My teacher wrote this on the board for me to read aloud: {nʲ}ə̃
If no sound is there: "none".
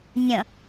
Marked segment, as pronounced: nʲ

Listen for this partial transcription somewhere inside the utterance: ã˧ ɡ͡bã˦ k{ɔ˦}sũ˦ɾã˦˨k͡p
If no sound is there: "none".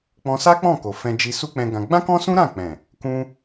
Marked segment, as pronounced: ɔ̃˦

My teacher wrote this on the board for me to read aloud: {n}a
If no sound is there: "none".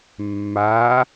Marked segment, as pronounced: mː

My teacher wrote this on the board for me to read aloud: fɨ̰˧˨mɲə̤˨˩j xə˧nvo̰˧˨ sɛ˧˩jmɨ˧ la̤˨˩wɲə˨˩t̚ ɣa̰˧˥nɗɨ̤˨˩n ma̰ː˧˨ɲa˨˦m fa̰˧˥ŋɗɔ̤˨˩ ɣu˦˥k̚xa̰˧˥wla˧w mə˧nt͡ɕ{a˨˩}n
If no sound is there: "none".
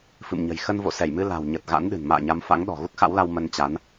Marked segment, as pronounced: a˨˦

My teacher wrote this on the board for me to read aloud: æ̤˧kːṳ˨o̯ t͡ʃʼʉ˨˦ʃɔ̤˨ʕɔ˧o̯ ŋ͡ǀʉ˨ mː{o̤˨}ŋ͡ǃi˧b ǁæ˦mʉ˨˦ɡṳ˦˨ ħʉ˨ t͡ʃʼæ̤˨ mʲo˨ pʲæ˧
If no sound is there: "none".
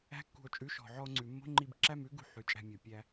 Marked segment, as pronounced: o̤˦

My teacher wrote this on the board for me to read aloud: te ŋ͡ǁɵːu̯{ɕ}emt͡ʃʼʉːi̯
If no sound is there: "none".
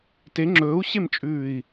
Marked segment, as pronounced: ɕ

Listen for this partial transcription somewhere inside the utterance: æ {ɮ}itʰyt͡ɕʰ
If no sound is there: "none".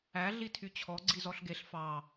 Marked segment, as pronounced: ɮ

